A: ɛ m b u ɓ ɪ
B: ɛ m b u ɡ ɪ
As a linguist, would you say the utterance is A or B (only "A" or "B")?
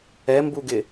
B